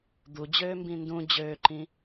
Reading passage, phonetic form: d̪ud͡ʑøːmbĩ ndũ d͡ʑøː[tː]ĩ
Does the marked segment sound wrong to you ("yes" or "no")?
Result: yes